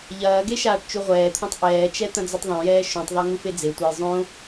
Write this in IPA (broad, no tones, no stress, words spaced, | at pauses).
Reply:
ʎɐːɡe ʃaːʈt͡ʃuʁʷɛːt̪ʰõtˤ ʔɛːt͡ʃɛ t̪ɐ̃d͡zɐtˤðˤõjɛː ʃũtˤðˤɛ ŋufed͡zetʷaj zˤõ